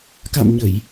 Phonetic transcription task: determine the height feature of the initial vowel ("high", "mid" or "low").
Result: low